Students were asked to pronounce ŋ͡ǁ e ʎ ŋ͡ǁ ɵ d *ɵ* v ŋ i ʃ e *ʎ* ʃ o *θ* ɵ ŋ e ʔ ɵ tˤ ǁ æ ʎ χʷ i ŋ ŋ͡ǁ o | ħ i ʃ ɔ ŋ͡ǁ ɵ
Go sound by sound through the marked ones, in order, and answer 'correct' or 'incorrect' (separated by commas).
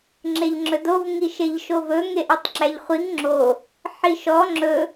incorrect, correct, incorrect